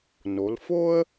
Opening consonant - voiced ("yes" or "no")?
yes